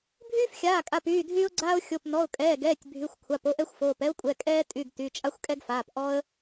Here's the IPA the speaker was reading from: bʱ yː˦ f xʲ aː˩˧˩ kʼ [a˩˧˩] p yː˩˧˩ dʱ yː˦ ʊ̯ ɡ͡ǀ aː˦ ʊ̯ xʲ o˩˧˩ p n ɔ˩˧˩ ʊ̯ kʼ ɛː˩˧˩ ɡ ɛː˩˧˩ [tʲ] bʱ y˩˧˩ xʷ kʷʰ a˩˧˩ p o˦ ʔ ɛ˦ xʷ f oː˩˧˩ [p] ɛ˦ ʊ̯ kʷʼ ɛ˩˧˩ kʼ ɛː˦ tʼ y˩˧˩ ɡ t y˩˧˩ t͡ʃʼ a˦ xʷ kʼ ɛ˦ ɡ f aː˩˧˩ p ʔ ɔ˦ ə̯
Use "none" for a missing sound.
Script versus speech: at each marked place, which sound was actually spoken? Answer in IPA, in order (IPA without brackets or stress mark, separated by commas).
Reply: a˩˧˩, tʲ, p